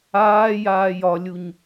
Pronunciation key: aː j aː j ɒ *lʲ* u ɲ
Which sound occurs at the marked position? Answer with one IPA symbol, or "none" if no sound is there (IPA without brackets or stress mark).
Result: lʲ